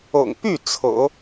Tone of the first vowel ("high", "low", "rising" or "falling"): low